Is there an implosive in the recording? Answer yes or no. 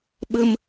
yes